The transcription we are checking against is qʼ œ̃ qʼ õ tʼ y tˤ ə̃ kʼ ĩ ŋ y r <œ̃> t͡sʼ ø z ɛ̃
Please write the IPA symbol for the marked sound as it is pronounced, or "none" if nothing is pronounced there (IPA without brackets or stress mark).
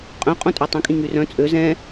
œ̃